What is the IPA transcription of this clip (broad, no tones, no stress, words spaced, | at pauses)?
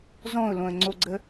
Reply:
zɔ̃ʊ̯lõə̯ŋ͡ǀoɡ͡ǀə